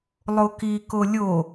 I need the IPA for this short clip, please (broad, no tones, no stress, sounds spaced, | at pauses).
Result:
lˠ o k i k o lʲ o